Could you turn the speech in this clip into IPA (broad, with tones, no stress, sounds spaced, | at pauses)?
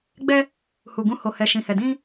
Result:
ɡ͡b ɛ˧ | h u˨ ɡ ũ˧ h o˨ h ɛ˨ ʃ ĩ˨ h ɛ˨ d ĩ˧